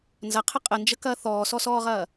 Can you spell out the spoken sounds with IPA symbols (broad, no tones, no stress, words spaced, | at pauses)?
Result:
nzɐqʰə qʼənd͡ʒəkɐː θɔːsɔsɔːʁɐː